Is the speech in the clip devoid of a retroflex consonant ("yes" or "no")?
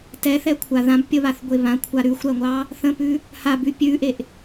yes